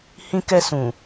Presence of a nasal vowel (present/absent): present